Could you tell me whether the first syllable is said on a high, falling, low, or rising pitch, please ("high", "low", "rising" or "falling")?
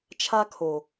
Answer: high